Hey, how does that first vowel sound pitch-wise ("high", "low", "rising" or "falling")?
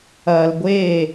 low